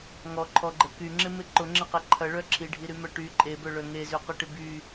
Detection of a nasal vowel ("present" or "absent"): absent